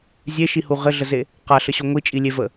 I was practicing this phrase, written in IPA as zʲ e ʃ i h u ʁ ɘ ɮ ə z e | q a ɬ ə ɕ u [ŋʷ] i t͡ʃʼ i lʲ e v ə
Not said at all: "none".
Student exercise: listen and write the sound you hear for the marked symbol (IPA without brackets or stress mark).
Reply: ŋʷ